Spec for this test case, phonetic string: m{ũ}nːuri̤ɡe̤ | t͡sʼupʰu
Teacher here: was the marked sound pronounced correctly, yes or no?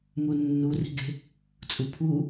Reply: no